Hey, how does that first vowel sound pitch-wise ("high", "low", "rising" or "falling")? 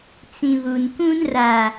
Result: low